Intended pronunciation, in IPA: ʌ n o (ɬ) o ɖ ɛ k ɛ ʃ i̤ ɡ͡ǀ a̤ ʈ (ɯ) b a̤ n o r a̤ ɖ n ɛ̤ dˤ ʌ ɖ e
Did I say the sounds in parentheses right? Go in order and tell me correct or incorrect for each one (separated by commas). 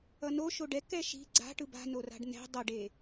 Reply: incorrect, correct